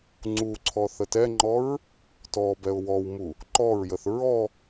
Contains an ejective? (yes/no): no